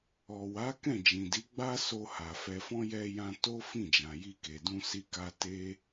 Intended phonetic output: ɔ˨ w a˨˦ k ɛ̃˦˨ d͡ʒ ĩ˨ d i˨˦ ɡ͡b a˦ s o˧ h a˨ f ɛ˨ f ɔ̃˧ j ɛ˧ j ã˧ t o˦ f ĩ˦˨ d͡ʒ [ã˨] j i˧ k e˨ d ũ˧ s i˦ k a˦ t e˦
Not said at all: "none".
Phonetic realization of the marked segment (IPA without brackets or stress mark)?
ã˨